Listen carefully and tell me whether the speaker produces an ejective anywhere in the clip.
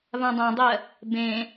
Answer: no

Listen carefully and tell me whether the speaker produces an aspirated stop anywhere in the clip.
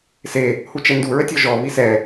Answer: no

